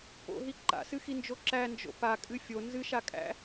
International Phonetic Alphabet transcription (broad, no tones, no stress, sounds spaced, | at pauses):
p o̰ ɦ i ǃ a̰ s ɨ x i n d͡ʒ o ǁ æ n d͡ʒ o̰ p a kʼ ɨ fʲ o n z ɨ ʃ a kʼ æ̰